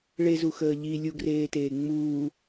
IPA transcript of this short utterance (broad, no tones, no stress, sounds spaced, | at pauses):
ɭ e z u x əː ʎ i lʲ u ɡ r eː t eː ŋ͡m uː